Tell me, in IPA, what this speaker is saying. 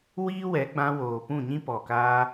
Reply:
w iː˦ w ɛ˨˦ ɡ͡b ã˧ w oː˨ p ũ˦˨ ɲ ĩ˦ p ɔ˨ k aː˧

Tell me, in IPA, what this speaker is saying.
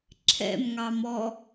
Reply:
ǁʰ ɛ̰ m ŋ ɑ m ɔ

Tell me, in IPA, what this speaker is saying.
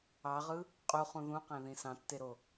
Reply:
ɑ ʁ ɯ | qʼ u χ ũ ð ũ q æ̃ ð ĩ s ɑ̃ tː e ɾ o

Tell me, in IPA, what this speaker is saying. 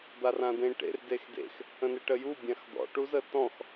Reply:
d̪ a r ã d ẽ ʈ ḛ r d e x d ḛ x | ə̃ n e ʈ ə j u bʲ ã x d̪ ɔ̰ ʈ u z ə t ɔ̃ x

